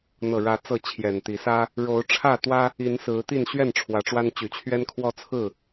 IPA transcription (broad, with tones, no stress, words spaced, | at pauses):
n̪ɤ˨˩ɻä˨˦ t͡sɤ˥˨t͡ɕʰjɛ˨˩nt̪i˨˦ sä˦ | ɻo˨˦ʊ̯ʈ͡ʂʰä˥˨t̪wä˦ | i˨˦nsɹ̩˨˦t̪i˥˨n ɕɥɛ˥˨n ʈ͡ʂʰwä˨˦ʈ͡ʂwa˦n t͡ɕy˨˩t͡ɕʰɥɛ˦n kʰwɔ˦t͡sʰɹ̩˥˨